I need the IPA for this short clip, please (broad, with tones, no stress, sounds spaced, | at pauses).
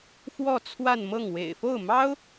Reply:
f w ɔ˥˧ t͡sʰ w a˥˧ n m ɤ˥˩ ŋ w ḛ˨˩ ɪ̯ f o˥˩ ʊ̯ m ɑ˥ ʊ̯